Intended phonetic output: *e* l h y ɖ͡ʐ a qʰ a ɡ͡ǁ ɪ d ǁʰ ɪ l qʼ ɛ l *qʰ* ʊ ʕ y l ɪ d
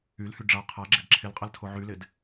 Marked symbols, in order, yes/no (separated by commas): no, no